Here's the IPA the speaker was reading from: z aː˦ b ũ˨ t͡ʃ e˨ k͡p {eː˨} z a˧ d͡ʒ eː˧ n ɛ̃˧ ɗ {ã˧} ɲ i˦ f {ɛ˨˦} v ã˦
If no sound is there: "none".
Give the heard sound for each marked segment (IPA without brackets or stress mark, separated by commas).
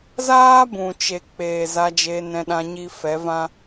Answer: eː˨, ã˧, ɛ˨˦